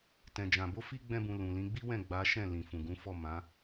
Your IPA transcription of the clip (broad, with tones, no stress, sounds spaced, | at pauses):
t ɛ̃˨ d͡ʒ ã˨ b o˧ f i˧ ɡ͡b ɛ̃˦ b ũ˧ l ũ˨ l ĩ˨˦ ɡ͡b i˦ w ɛ̃˦˨ ɡ͡b a˨˦ ʃ ɛ̃˦˨ l ĩ˨ f ũ˨ ɡ ũ˨˦ f ɔ˦˨ m ã˨˦